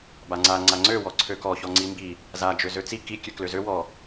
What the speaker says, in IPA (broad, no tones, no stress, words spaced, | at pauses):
baŋ͡ǀa ŋ͡ǀaŋ͡ǀø wɔǀʰøkɔ çɔŋ͡ǀimbi | za d͡ʒøzøt͡si ki kʲøkløzø wɔ